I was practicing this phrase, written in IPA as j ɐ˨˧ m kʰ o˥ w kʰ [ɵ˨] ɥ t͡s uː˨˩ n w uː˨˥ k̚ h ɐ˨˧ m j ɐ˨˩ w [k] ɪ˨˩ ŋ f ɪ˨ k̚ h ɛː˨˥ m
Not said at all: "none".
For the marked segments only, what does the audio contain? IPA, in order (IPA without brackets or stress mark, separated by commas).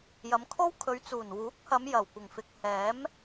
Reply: ɵ˨˧, kʷ